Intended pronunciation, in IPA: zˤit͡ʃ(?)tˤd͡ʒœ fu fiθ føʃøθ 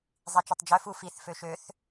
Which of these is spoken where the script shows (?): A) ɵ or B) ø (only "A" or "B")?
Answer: A